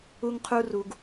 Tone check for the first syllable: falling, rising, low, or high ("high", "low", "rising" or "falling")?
high